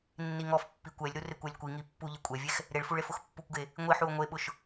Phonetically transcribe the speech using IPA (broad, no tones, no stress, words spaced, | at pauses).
nːiŋɔfpːi kʷɛlʲɾu rɪkʷɛlʲkʷiŋi pːuʎɪ kʷʼɛvʲɛx | ɾeɭfuɭ efʊxpːukʷɡe | ŋʷiħuo̯ ŋʷeɓʊʃ